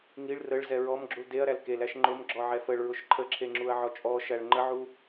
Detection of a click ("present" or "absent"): present